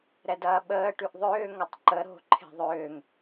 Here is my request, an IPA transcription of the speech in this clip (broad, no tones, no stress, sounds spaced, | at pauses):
ɾ ɛ d ɐː ɓ əː ʈ y ʔ ðˤ ʏː ŋ ɐ tˤ ǃ ə ɾ o̤ ǃʰ e̤ ðˤ ʏː ŋ